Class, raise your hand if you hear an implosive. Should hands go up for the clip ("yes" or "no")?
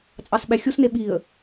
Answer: yes